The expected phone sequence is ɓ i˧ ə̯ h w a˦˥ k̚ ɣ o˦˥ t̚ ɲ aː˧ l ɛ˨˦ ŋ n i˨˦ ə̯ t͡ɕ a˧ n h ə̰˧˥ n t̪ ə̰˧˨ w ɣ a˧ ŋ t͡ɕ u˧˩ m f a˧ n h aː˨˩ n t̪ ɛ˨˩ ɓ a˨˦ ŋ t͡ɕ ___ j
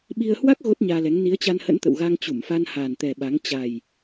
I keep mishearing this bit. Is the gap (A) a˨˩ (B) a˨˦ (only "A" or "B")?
A